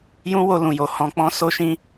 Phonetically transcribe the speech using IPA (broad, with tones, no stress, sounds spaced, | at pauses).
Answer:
j ũ˦ w o˧ l ũ˨ j o˨ h ɔ̃˧ k͡p ɔ̃˧ s o˦ ʃ ĩ˦